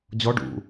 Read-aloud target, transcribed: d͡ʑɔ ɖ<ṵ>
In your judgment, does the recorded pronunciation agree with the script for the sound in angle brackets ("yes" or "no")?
yes